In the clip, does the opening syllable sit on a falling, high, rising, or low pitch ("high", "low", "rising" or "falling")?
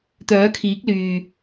rising